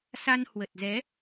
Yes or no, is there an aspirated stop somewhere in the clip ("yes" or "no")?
no